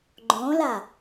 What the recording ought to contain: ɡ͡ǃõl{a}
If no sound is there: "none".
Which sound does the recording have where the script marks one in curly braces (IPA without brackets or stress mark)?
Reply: a